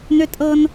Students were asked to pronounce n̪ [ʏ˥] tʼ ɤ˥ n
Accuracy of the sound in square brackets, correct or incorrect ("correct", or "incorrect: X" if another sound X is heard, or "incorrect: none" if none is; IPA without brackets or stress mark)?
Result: correct